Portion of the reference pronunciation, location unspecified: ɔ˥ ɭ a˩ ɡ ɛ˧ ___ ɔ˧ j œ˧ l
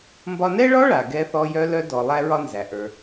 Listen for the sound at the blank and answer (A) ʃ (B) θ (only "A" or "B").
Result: B